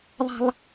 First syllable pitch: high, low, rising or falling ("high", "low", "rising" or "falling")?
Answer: high